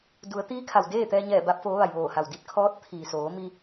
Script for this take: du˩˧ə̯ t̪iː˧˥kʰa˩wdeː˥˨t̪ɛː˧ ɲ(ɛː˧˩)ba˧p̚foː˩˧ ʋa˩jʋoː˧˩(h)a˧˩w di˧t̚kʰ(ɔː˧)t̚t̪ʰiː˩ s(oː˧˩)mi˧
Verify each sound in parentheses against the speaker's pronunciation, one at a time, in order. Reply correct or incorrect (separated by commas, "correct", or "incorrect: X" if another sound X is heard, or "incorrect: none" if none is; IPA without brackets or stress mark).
correct, correct, incorrect: ɔː˧˥, incorrect: oː˩˧